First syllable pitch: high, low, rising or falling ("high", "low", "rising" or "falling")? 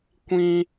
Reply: high